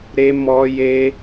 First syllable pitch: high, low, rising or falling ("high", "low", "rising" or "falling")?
high